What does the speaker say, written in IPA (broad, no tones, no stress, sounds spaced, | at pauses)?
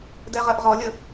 d ɛ ʁ ɜ ʔ ʁ ɔ lʲ ə